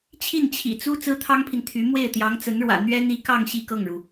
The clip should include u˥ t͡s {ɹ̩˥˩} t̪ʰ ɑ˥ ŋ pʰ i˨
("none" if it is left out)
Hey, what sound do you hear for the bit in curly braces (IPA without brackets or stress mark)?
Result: ɹ̩˥